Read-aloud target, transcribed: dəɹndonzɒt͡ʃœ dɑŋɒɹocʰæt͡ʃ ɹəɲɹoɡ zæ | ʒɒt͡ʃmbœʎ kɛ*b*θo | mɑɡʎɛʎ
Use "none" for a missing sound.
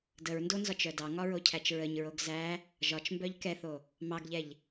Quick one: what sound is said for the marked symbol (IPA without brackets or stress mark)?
none